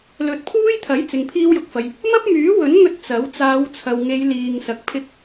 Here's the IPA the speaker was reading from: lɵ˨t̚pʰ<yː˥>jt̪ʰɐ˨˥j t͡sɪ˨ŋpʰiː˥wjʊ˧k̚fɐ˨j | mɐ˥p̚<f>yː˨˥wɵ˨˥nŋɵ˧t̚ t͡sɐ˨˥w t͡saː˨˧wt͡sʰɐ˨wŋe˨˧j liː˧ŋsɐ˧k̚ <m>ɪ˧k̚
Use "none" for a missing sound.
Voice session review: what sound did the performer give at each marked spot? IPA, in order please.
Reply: uː˥, m, pʰ

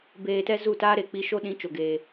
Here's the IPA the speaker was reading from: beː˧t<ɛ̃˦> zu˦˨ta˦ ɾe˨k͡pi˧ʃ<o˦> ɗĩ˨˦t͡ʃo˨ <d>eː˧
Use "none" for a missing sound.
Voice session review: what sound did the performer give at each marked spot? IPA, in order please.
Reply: ɛ˦, o˦, ɡ

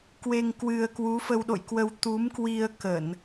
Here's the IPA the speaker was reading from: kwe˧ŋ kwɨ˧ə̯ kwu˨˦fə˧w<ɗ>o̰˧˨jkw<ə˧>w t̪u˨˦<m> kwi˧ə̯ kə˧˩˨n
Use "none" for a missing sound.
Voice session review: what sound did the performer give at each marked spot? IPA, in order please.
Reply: ɗ, ə˧, m

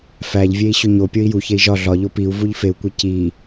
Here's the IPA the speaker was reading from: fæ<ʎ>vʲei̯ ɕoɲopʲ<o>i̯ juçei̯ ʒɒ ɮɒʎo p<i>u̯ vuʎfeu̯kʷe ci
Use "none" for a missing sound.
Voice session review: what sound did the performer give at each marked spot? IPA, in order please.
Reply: ʎ, o, i

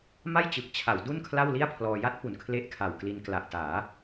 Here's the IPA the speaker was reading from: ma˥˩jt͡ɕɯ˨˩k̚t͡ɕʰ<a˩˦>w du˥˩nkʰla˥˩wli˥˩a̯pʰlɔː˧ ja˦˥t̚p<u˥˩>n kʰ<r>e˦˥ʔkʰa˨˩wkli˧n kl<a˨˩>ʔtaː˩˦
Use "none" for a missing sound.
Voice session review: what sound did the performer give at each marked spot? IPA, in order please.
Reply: a˩˦, u˩˦, l, a˨˩

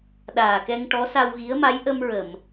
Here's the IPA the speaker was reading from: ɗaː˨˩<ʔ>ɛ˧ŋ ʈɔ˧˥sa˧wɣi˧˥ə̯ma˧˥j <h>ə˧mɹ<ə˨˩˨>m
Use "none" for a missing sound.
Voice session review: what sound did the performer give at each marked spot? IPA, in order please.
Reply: k, ʔ, ə˨˩˨

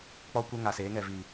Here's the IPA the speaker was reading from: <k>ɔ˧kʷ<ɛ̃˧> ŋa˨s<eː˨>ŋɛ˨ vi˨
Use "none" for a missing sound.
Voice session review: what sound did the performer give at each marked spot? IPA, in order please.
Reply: k͡p, ɛ˧, eː˨˦

